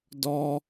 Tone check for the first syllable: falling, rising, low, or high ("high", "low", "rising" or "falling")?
high